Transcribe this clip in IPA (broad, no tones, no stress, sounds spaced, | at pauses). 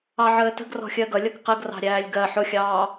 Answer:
ɑ ʕ əː t ə̤ ɡ r ɔ̤ xʲ ɜ ɡ ʌ lʲ ʌ k q ə ɡ r ɑ̤ ɾʲ æː lʲ ɡ ɜ ħ ʊ xʲ ɑː